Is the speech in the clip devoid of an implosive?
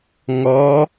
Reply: yes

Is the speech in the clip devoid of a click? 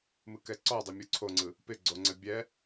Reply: no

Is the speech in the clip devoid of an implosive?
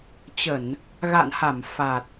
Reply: yes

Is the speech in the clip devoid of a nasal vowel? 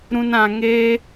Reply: no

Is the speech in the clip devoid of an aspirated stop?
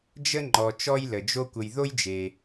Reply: yes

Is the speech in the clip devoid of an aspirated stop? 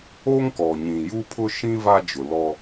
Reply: no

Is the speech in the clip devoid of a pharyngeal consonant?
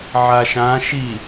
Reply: no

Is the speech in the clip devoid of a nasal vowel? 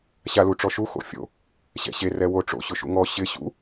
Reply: yes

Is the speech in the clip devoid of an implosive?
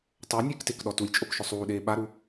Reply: no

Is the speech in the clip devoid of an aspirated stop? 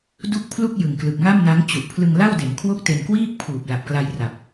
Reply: no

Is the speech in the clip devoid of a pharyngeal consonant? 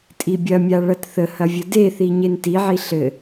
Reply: no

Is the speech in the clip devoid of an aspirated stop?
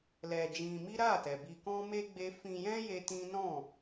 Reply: yes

